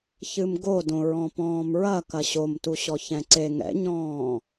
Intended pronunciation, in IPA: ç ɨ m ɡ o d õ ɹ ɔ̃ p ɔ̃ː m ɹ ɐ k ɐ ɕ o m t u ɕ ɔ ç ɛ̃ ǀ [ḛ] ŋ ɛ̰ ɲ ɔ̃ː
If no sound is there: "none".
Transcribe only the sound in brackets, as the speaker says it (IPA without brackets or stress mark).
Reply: e